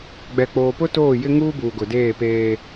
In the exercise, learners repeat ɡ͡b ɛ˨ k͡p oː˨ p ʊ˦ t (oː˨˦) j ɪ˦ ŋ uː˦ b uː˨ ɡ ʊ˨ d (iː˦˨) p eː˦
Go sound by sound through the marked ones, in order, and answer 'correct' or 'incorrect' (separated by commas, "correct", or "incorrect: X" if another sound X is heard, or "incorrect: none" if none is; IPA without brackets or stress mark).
incorrect: oː˦˨, incorrect: eː˦˨